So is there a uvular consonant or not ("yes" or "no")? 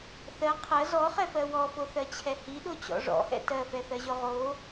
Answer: yes